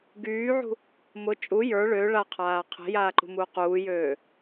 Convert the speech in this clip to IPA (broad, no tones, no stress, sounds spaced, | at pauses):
ɡ yː ʕ ṳ | m ʊ t͡ʃʼ u j ə˞ ɭ ø ɭ a qʰ aː qʰ e̤ j aː ǃ ṳ m uː q uː j øː